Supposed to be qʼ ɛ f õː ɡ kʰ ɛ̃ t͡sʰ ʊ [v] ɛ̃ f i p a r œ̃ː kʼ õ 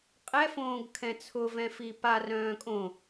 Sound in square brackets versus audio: correct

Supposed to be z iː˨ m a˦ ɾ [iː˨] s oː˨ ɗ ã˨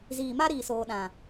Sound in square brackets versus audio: correct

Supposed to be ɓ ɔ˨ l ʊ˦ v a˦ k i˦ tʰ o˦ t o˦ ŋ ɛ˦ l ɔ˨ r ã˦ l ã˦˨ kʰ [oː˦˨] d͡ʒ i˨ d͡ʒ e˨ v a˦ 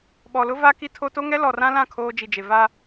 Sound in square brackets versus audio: incorrect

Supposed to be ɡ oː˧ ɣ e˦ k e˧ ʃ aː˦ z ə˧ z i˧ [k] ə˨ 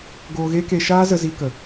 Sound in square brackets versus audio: correct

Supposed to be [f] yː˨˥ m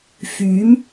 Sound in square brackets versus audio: correct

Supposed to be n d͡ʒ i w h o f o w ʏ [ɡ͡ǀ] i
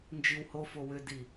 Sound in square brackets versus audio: incorrect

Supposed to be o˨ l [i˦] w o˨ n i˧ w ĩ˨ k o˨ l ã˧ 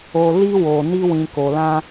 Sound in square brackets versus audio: incorrect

